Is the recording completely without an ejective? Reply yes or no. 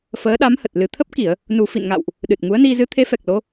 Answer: yes